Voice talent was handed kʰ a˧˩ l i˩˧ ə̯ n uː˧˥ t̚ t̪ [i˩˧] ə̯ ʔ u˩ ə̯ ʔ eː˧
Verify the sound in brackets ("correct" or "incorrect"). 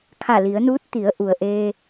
correct